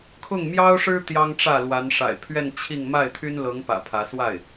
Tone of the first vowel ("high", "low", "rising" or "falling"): falling